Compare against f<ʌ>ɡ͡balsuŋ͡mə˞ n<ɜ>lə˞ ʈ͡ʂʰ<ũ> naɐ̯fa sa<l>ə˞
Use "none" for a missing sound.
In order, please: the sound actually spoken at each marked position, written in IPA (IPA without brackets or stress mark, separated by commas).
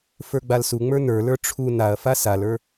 ə˞, ə˞, u, l